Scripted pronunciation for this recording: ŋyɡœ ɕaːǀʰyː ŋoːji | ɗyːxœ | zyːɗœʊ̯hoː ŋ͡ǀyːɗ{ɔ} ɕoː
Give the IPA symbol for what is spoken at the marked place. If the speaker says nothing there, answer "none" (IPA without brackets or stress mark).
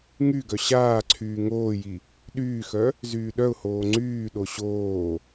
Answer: o